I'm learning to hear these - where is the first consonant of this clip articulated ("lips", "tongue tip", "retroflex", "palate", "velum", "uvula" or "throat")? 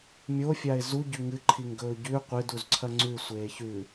lips